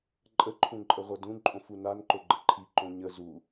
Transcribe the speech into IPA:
ǃʼ ə ǃʰ ũ ǃʼ ə ʁʷ ɐ d ũ ǃʼ õ f u n a n ǃ o ɡ͡ǃ ə ǃʰ i ǃ õ ɲ ə z u

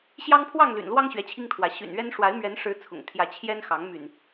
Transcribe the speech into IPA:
ɕ j ɑ˦ ŋ pʰ w ɑ˥˨ ŋ l y̰˨˩ n l w ɑ˦ ŋ ɕ ɥ ɛ˨˦ t͡ɕʰ i˦ ŋ t̪ʰ w ä˨˦ ɕ y̰˨˩ n ɥ ɛ˦ n ʂ w a˨˦ ɪ̯ m ɥ ɛ˨˦ n ʂ ɻ̩˨˦ t͡sʰ ʊ̰˨˩ ŋ t̪ʰ j ä˨˦ t͡ɕʰ j ɛ˦ n x ɑ˨˦ ŋ m y̰˨˩ n

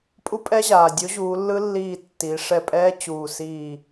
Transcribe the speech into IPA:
pʼ u˦˥ pʼ ɛ˦˥ ʑ aː˩ dʲ o˨˥ ʑ uː˩˧ lː ɯ˦˥ lː iː˧˩ tː iː˩˧ ʂ ɛ˧˩ pʼ ɛː˦˥ t͡ɕ uː˧˩ s iː˥˨

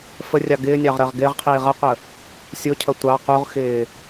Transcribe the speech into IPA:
f ə rʲ ɑ ɡ ɪː nʲ ɑ ʁ ɾ ɜ ʁ ɡ ɪː ʁ qʰ iː ʁ ʌ qʷ ə | sʲ ʊ cʰ ʌ tʷ ɑ q u ʁ x ɪː

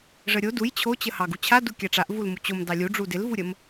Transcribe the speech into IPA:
ʐ ə ɾʲ o d u j t͡ɕʰ o t͡ɕ ə h ɑ ɡ u t͡ɕʰ a d u kʲ a ʈ͡ʂ a ʔ v u l m u t͡ɕ o m d ɑ lʲ u ɖ͡ʐ u d ɪ l v u ɾʲ ə m

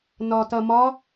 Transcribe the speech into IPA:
n ɒ t ɐ m ɒ

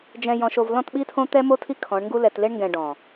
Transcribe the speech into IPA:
d͡ʒ ɛ̃˨ j ɔ̃˨ ʃ o˨ v l ɔ̃˦˨ t ɓ i˦ tʰ õ˦ t̪ ɛ˦ m o˦ tʰ i˦ kʰ ɔ̃˨˦ ɳ ŋ ɡ u˦ l ɛ˨ t l e˦ ɳ ŋ ɡ ɛ̃˨ ɖ ɔ̃˨

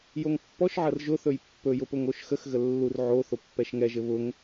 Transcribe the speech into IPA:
j o ŋ pː ɔ ʃ ʕ ɐ r ʒ ʊ θ ɵ j pː ɵ j ʊ p ʊ ŋ o ʃ x ə x ɣ ə lː u r ʕ o θ o pː ɛ ʃ ŋ ɛ ʒ ɘ β ʊ ŋ

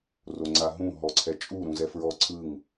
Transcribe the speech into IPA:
r o ŋ͡ǀ a ɦ ũ ɦ ɔ ǀʰ ɛ t͡ʃʼ u ɾ ũ z ɛ f ɹ ɔ ǀʰ ɯ ŋ

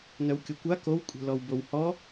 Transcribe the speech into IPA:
n œ w kʲ o kʷ a k o w kʷʼ ɛ̤ l ɔ w b o w h ɔ

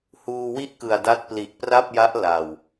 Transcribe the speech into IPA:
h uː˧ w i˥˩ ʔ k ɯ˨˩ a̯ d a˦˥ t̚ p l i˨˩ ʔ p r a˥˩ p̚ j a˦˥ ʔ l a˨˩ w

